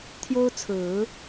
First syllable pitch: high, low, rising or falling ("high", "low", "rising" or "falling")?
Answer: high